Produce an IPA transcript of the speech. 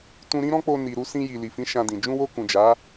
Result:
tũ˧ɾĩ˦ ɾɔ̃˦k͡po˧ ni˨ ɾu˧sĩ˧ji˨ li˨fĩ˨˦ ʃã˧dĩ˨ d͡ʒũ˧wo˧ kũ˨d͡ʒa˨˦

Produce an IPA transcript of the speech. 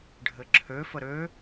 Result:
ɖʱɘǁʰø fəɾø

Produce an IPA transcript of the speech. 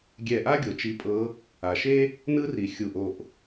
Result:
ɡʲɛ˧˩ʔa˥ ɡʲo˩t͡ʃi˨˦pʼɤ˨˦ | a˩ʃe˥ | nɯ˥ri˩ xʲu˧˩ʔo˧˩ʔ

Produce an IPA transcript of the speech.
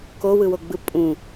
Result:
kowɯwoɡ͡bɯ pʼũ

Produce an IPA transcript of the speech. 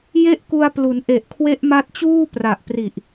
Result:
je˥˩ʔku˧a̯plu˩˦n ʔe˨˩ʔkʰwe˦˥ʔ ma˦˥t̚t͡ɕuː˥˩ pra˨˩ʔpri˨˩ʔ

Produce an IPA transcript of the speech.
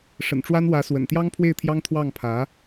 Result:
ʂə̰˨˩nʈ͡ʂwa˥nwä˧˥swə̰˨˩n t̪jɑ˥ŋpʰwe˥˩ɪ̯t̪ʰjɑ˥ŋ t̪ʰwɑ˥˩ŋpʰä˧˥

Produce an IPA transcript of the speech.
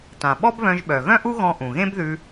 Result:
tã˩ ɓɔ˥bβœ̃˧ʒɓœ˩ ɣœ̃˥ʔu˥ɣɔ̃˧ ʔũ˩ɣẽ˥bðʉ˧

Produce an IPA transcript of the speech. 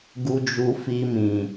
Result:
ɡu˧d͡ʒu˧fi˧ mĩ˨

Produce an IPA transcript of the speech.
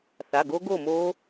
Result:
θa˩˧˩ɡo˦˥ɡo˥˨mo˦˥

